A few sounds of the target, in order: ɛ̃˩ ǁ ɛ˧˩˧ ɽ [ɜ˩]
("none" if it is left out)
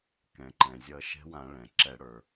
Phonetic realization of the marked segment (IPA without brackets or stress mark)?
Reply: ə˞˩